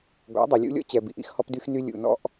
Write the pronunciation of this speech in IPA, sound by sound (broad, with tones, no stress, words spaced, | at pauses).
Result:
ɡɔ̰˨˦dˤi˨lʲṵ˦ lʲɔ̰˦t͡ɕɛ˨ bḭ˨ʔḭ˦xhɔ˦pdy˦x ny˦ lʲṵ˨nɔ̰˦ʔ